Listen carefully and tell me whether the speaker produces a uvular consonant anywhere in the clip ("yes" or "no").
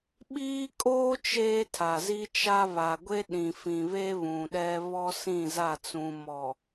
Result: no